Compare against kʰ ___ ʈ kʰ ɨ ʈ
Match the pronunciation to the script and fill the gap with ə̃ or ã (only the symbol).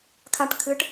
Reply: ã